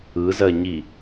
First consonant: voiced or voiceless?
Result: voiced